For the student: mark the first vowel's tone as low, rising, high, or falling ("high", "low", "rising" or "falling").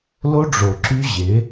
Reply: high